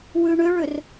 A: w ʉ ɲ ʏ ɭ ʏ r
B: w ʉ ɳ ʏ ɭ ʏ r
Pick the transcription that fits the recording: B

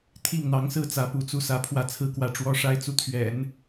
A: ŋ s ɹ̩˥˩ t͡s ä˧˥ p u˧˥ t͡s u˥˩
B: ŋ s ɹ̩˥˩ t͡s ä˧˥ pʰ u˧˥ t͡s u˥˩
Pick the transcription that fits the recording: A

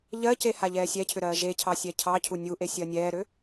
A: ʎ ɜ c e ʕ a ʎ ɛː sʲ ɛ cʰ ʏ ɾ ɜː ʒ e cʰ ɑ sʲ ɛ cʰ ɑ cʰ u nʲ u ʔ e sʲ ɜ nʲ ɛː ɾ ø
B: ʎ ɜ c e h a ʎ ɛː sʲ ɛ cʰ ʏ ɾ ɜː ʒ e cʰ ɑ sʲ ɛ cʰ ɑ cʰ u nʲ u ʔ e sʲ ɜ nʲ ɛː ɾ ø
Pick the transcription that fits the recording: B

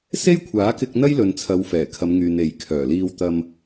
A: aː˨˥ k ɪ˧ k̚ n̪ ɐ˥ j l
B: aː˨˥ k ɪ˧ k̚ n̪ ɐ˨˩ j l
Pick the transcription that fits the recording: A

